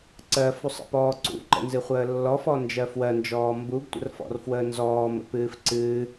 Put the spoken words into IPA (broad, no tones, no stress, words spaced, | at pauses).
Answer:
ǀɜfusˤə̰pɔː ǀṵǃə̰nzɨ χʷəːlːɔfɔnd͡ʒɜ fwɜnd͡ʒɔː mbuɡtʷə̰r fɔ̰rfwəːnzɔː mə̰pɨːfǀɨː